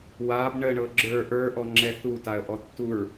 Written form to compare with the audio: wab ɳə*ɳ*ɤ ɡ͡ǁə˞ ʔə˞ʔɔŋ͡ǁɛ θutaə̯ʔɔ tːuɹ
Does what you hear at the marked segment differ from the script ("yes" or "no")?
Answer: no